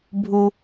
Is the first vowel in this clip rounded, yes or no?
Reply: yes